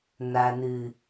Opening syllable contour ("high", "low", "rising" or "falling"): low